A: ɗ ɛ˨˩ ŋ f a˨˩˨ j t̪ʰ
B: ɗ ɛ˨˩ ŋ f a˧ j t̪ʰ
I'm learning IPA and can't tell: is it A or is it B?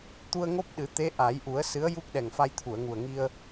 B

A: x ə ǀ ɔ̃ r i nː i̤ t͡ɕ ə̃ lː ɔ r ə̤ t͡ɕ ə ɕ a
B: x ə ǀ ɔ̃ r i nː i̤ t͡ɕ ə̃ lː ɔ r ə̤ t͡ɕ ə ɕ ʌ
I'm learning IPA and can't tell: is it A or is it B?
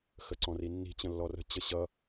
B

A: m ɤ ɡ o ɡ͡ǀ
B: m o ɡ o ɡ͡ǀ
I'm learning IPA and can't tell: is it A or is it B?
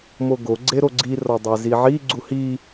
B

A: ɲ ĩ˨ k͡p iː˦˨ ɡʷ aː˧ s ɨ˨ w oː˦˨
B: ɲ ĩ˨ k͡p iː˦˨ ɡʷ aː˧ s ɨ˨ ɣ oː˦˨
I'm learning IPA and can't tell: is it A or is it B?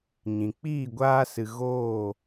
B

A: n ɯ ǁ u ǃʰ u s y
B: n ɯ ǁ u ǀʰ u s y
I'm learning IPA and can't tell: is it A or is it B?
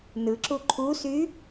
A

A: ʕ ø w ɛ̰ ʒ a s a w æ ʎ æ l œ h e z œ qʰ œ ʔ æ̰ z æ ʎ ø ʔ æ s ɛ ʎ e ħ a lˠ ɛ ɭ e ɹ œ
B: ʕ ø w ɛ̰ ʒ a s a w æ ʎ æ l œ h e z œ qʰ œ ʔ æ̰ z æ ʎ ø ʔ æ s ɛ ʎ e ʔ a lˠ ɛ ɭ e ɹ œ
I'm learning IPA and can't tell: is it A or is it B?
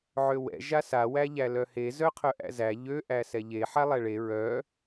A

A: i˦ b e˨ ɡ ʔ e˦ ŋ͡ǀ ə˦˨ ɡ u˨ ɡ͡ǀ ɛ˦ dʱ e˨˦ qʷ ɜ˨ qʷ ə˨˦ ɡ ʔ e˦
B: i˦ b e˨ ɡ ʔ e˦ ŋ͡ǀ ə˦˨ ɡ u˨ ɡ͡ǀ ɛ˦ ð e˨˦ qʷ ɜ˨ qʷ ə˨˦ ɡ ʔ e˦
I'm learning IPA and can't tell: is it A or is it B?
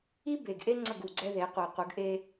B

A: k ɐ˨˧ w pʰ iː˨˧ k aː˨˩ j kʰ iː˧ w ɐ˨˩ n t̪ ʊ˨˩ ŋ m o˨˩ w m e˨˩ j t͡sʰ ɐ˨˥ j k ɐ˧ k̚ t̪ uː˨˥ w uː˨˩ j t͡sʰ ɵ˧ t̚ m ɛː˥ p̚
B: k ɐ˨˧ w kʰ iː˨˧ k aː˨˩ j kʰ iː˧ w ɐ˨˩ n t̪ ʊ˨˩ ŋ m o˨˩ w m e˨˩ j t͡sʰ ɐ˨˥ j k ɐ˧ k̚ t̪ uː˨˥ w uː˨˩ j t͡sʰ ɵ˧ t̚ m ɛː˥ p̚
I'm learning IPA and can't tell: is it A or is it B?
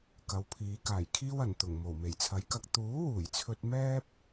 A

